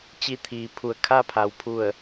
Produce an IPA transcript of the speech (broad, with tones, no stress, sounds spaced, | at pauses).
t͡ɕ i˧˩ t̪ʰ iː˩˧ pʰ u˩ ə̯ kʰ a˧ pʰ a˩ w pʰ u˧˩ ə̯